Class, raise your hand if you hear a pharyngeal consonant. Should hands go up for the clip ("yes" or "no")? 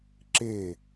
no